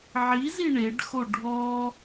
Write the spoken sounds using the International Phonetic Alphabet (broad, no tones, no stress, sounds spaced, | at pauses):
ʕ i z i ɳ e ɖ x o ɖʱ ɔ